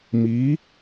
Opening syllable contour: rising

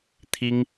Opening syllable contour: high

